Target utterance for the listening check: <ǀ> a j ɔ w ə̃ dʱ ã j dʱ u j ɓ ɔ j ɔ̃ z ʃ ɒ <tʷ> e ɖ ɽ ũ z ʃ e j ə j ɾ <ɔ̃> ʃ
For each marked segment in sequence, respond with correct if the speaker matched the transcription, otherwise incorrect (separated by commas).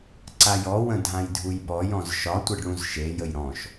correct, correct, correct